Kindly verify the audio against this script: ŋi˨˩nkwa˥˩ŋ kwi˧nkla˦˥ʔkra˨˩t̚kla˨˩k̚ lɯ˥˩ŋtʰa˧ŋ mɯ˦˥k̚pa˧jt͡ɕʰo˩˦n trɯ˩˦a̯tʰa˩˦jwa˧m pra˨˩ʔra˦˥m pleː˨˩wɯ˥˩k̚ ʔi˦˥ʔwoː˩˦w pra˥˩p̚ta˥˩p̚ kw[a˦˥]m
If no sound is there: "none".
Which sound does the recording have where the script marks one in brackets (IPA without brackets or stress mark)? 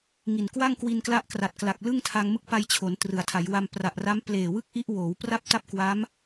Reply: a˦˥